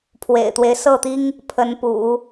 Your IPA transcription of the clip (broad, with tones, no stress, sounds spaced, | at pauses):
pʰ w ḛ˨˩ ɪ̯ t̪ w e˦ ɪ̯ s ɤ˥˩ t̪ i˥ ŋ | pʰ ə˧˥ n p ṵ˨˩˦